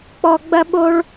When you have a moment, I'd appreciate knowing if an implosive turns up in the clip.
yes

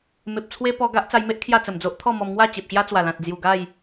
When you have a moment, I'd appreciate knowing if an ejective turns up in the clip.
no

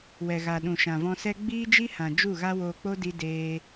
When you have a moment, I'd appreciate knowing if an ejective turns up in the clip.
no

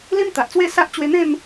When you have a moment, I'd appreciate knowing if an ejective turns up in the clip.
no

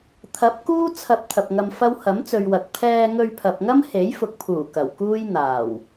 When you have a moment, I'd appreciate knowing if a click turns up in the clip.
no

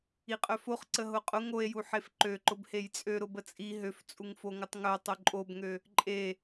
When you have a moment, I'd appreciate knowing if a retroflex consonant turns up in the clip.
no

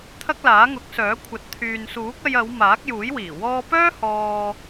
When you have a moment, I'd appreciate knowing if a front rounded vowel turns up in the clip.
yes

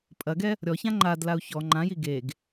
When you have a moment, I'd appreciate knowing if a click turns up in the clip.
yes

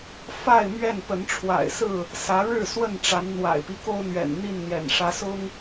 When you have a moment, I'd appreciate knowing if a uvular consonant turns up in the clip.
no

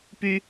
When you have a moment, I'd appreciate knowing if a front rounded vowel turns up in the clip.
yes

